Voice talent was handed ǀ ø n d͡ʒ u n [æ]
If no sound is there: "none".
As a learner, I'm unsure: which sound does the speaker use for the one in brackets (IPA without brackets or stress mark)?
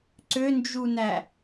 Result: æ